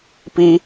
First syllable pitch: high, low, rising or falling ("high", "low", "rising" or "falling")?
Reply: high